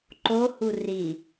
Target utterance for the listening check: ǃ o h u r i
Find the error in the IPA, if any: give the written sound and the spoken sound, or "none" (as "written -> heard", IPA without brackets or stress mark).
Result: none